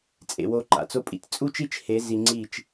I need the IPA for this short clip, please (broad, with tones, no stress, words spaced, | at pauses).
t͡sʼḛ˧wo˦ǃa̰˨ t͡so˦ pʼḭ˧t t͡sʼu˦t͡ʃi˦t͡ʃhe˨˦ zi˧ŋ͡ǀiː˦˨t͡ʃ